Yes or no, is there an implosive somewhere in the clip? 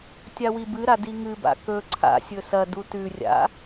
no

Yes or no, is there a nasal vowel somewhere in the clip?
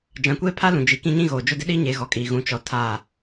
yes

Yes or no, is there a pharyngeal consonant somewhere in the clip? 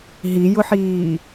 yes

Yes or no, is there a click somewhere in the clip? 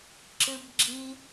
yes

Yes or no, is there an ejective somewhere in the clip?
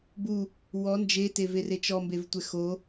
no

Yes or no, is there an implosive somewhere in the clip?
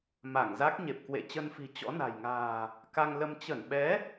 yes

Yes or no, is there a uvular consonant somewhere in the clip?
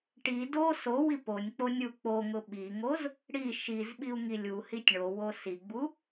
no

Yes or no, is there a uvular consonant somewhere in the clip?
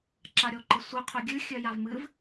yes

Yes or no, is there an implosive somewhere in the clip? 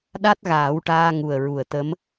yes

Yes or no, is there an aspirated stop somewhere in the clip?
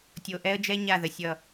no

